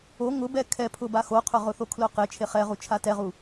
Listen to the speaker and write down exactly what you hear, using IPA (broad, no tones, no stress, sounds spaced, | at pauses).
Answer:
o ŋ ʊ b ɛ kʰ ɛ pʰ ʊ b a x o qʰ ʊ ʁ ʊ θ o kʰ l ʊ q ɪ t͡ʃʰ e χ ɛ ʁ u t͡ʃʰ a t ɛ ʁ u